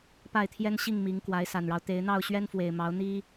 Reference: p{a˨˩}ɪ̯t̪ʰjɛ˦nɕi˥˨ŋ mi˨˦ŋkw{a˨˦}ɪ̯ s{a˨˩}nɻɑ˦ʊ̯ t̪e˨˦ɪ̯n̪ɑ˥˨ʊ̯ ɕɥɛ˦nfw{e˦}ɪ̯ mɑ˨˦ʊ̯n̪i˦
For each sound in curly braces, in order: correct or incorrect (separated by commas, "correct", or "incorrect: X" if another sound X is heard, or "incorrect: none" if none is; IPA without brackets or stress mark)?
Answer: incorrect: a˥˨, correct, correct, incorrect: e˨˩